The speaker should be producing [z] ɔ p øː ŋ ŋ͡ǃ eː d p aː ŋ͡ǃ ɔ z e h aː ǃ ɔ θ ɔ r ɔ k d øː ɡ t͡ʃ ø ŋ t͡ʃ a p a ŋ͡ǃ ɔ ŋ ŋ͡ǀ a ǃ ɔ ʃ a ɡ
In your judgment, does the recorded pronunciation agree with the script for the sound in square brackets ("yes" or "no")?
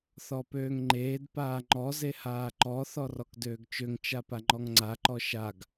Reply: no